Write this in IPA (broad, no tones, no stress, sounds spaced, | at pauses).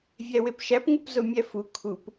vʲ æ w e p ʃ æ p ŋ u p z o mʲ æ f u kʰ u p